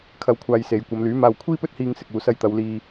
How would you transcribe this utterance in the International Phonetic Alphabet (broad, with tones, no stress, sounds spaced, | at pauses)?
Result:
kʰ ɐ˨˧ w kʷʰ aː˨ j s e˨˧ j kʷ ɐ˨˧ m l yː˨˥ m aː˧ w kʷʰ iː˥ p ɵ˥ t̚ h iː˧ ŋ s ɪ˨ k̚ uː˨ s ɐ˧ j t̪ ɐ˨˧ w l iː˧